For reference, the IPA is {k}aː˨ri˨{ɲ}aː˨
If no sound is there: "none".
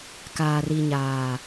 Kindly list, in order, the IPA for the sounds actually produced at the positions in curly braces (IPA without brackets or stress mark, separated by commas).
k, ɲ